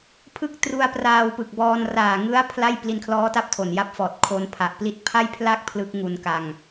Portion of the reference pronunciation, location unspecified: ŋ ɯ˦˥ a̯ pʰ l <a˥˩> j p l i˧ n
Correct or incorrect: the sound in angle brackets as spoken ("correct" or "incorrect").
correct